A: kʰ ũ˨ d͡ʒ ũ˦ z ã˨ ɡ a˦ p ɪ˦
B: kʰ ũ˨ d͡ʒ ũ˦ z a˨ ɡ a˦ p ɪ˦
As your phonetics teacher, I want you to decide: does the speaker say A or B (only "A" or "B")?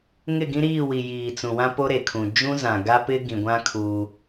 A